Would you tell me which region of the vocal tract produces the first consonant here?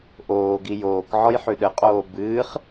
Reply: throat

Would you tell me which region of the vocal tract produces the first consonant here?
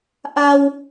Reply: throat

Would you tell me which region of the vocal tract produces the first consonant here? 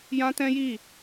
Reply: palate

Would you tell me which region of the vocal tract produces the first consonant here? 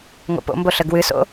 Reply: velum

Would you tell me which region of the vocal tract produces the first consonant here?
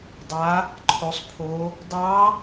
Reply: tongue tip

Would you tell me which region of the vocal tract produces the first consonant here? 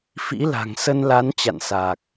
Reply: lips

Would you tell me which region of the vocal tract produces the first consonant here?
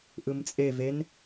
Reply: throat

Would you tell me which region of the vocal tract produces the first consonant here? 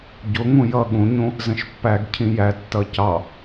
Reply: palate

